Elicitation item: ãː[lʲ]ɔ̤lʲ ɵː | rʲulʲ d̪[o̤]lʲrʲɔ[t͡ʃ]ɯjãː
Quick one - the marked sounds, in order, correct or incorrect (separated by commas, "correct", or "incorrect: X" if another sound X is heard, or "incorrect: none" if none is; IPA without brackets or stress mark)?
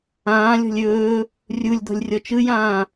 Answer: correct, incorrect: ɔ̤, correct